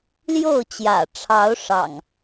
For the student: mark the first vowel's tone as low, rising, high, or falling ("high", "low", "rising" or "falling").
falling